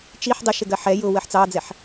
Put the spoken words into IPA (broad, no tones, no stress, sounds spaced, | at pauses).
t͡ʃ i ħ dˤ ɪ ʃ ɪ ɡ ɜ ħ ɛ j ʊ w ɜ ħ t͡s ɑ d͡z ɛ ħ